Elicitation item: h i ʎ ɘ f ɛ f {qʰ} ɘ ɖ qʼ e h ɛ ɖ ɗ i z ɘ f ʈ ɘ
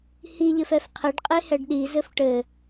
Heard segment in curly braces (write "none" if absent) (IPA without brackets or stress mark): qʰ